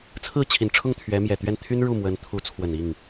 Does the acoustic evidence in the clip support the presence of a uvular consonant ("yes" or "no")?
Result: no